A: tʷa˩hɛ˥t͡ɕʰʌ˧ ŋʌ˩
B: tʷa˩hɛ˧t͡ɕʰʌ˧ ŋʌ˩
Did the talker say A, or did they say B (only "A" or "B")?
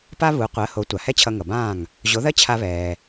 A